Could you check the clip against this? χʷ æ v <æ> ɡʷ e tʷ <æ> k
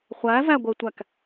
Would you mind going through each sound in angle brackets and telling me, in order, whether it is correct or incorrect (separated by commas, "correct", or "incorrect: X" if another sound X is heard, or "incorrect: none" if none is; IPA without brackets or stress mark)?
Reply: correct, correct